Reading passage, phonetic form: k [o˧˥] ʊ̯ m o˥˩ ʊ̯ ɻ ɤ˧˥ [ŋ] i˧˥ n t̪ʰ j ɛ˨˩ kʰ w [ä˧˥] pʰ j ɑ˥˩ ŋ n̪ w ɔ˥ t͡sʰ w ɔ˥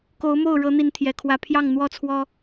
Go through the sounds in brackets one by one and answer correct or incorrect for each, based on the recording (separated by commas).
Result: correct, incorrect, correct